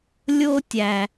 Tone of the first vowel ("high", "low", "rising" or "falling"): high